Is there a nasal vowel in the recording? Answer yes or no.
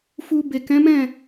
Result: yes